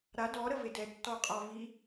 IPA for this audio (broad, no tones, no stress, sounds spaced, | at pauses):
ɾ a d ɔ ɾ ə v e d ɛ tː ɔ qʼ ɔ v i